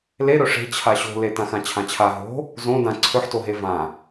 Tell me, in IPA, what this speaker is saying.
l e ɾ ɵ ʂ e̤ t͡ɕʰ a ɕ o̤ l e t ã x ã t͡ɕʰ ã t͡ɕʰ a ɦ o̤ | z õ d ã ǀʰ ɵ ħ t o ɦ e v ã

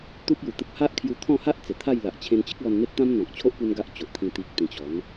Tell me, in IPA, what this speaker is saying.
t̪ u˦ p̚ j u˨˩ t̪ ə˦ p̚ h a˦ ʔ kʰ j u˧ t̪ʰ ɔ̃˥˧ h a˦ ʔ t͡s e˨˩ t̪ʰ a˥˧ j l a˨ ʔ t͡ɕʰ ẽ˧ n t͡ɕ ə˦ k̚ l ɔ˧ n n̪ e˦ t̚ t̪ ã˦ m n̪ ɔ̃˨ k̚ t͡ɕʰ o˦ ʔ p u˦ n ɡ a˦ ʔ t͡ɕ o˨ ʔ t̪ʰ ĩ˧ t̪ i˦ k̚ t̪ ĩ˧ t͡ɕ ɔ˨˦ n

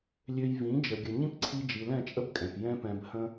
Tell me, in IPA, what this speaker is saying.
lʲ ø˧ j v ĩ˨˦ d͡ʒ ə˨ ɡʲ ə˨ ɲ ĩ˦ p ǀʰ i˧ d͡ʒ i˨ l ɛ̃˦˨ t͡ʃʼ ə˦ b kʼ ɛ̃˨ p j ɛ̃˦ p ɛ̃˧ b h ə̃˦

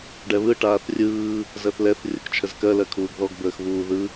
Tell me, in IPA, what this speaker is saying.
ɖ ɛ β ɯ ʈ aː θ rʲ ɯː | z ɜ θ l ɛ θ rʲ ə k t͡ʃʰ ə z k ɜ l ɜ kʰ uː ɡ ð ɔ ɡ b əː x β uː ð ɯ

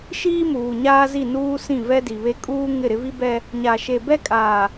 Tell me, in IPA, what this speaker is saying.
ʃ iː˦ m uː˨ ɲ aː˦ z i˦˨ n uː˦ s ĩ˦˨ v ɛ˦ d i˨ β e˦ kʼ uː˦ ŋ ɪ˦˨ ɾ ɪ˦ v i˦ b ɛ˦ | ɲ a˨ ʃ e˨ b ɛ˦ kʼ aː˨

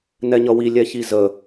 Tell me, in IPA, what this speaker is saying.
n ɛ ɲ ʌ w i lʲ ɛ ç i z ə

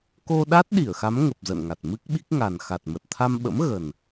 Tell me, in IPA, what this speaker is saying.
k o˧ ɗ a˦˥ t̚ ɗ i˧˩ ə̯ x a˨˦ m ŋ ə˨˩ p̚ z ə̰˧˨ n ŋ a˨˩ t̚ m ɨ˦˥ k̚ ɓ i˦˥ k̚ ŋ a˨˩ n x a˨˩ t̚ m ə˨˩ t̚ t̪ʰ a˧ m ɓ ə̰˧˥ m ɣ ə˨˩ n

